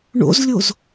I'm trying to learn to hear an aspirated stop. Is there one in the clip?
no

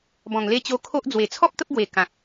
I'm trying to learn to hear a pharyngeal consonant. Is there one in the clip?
no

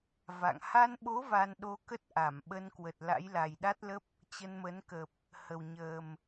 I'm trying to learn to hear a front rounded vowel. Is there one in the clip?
no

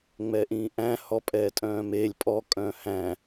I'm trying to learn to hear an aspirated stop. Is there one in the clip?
no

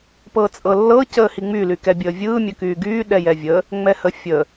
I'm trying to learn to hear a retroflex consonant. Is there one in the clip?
no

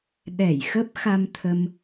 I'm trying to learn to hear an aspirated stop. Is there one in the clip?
yes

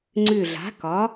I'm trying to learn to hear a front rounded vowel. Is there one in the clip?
yes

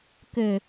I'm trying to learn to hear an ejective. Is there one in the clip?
no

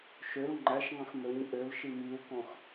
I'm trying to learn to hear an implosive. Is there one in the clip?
no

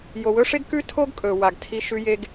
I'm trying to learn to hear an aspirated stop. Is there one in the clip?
yes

